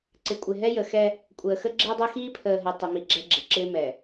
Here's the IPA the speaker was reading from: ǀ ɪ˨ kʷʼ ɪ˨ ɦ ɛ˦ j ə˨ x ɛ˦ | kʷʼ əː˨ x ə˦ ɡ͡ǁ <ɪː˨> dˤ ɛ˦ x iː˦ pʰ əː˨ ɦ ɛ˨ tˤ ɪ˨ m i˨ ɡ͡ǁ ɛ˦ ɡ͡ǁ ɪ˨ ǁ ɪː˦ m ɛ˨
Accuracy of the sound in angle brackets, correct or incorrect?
incorrect